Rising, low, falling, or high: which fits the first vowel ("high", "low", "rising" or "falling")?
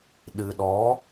low